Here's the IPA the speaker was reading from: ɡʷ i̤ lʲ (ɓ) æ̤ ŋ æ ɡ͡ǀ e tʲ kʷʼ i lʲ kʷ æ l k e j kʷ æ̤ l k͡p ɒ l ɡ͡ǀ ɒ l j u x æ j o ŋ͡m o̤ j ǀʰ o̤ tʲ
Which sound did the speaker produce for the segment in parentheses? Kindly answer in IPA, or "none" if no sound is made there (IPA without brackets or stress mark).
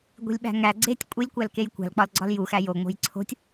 ɓ